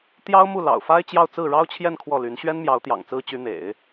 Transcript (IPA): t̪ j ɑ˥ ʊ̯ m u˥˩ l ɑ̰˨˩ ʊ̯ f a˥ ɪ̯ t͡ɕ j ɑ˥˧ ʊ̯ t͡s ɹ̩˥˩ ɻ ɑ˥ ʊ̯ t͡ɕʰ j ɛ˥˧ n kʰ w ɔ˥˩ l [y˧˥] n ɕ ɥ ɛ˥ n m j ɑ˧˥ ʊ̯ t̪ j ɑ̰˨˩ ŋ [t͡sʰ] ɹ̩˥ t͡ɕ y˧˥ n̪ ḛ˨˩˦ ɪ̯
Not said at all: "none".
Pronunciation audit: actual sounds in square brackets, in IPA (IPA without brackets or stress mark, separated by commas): y˧˥, t͡s